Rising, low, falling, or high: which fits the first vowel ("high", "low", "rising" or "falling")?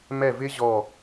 falling